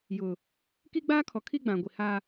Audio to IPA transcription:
j ʊ˨ | k i˦ ɡ͡b aː˦ kʰ ɔ˨ kʰ i˦ ɡ͡b ã˨ ɡʷ i˨ h a˦

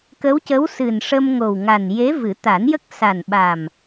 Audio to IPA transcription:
k ə˧˥ w c ə˧˥ w s ɨ˨˩ n ʂ ə˧ m ŋ o˨˩ w ŋ a˨˩ n j e˧˥ v ɨ˨˩˦ t̪ a˨˩˦ n j ə˦˥ k̚ s a˨˩ n ɓ a˨˩ m

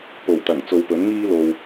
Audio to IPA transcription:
p o˨˩ w t̪ ɐ˨˩ ŋ t͡s o˧ w p ɵ˨˥ n ŋ iː˥ l o˨ w

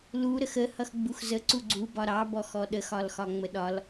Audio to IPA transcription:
l u ɾ ə x ə h ʌ x ɡ͡b u x z ə ǀ u ɡ͡ǀ u b ɒ ɾ ɑ b ɔ x ɔ ɗ ə x ɒ l x ɒ ŋ͡m ə ɗ ɒ l

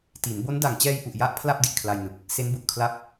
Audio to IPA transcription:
t i˩˦ n b o˦˥ n d a˨˩ ŋ t͡ɕ ɛː˧ j ʔ u˨˩ ʔ j a˦˥ ʔ pʰ l a˥˩ p̚ d i˨˩ ʔ kʰ l a˧ j n ɯ˨˩ k̚ | s e˦˥ n b u˨˩ ʔ kʰ l a˥˩ p̚

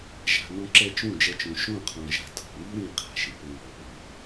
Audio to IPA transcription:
ʒ a̤˨ n ɔ̃˧ ǁ ɛ˧ t͡ʃ ũ˦˨ d͡ʒ ɛ˧ t͡ʃ ũ˨ ʃ õ˦˨ qʰ ɔ̃˨ ʒ a̤˧ tʰ ɔ̤˨ w i˦ ɾ ĩ˧ qʰ a̤˨ ʃ ɪ˨ p ɪ˧ ɹ ɔ˨ p ʊ˨

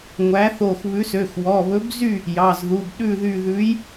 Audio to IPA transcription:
ŋʷ æ˨˥ θ o˧˩ x β ʉ˨˥ s ø˩˧˩ x w ɔ˩˧˩ β ɵ˨˥ b z y˥˨ | j ɑ˩˧˩ z ð u˩˧˩ b ɗ ʉ˥˨ ð y˧˩ ð ʉ˨˥ j

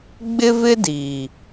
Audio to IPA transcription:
ɡ͡b ɪ˦ v ɪ˦ d iː˨

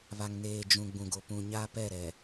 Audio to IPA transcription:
β a˨ ŋ n eː˨ d͡ʒ ũ˨ ɡ͡b ũ˨ ɡ o˨ p ũ˨ ɲ a˦ p ɛ˦˨ ɾ ɛ˨

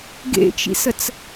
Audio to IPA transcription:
ɡ ḛ t͡ʃ ḭ s ə t͡s

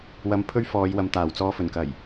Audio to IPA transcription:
w ɐ˧ m pʰ ɵ˥ ɥ f ɔː˨˧ j w ɐ˨ m t̪ aː˨˩ w t͡s ɔː˧ f ɵ˨˩ n k ɐ˨˩ j

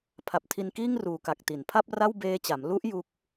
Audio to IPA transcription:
pʰ a˨˩ p̚ tʰ i˧ n k iː˥˩ ŋ r uː˨˩ k a˨˩ k̚ t i˩˦ n pʰ a˥˩ p̚ r a˥˩ w b eː˧ t͡ɕ a˩˦ m l u˦˥ ʔ j u˦˥ k̚

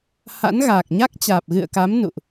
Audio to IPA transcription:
h a̰˧˥ n ɣ aː˨˩ k̚ ɲ a˦˥ k̚ t͡ɕ aː˨˩ p̚ ɣ ɨ̰˧˨ ə̯ k a˨˦ m n ṵ˧˨ ʔ

